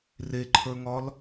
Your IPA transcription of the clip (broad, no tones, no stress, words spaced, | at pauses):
reǃʰə˞ŋɒl